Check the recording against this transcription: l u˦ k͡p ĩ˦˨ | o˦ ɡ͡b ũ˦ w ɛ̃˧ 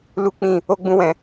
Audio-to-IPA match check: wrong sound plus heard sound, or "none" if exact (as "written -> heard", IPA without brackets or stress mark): none